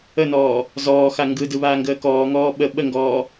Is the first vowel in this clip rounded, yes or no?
no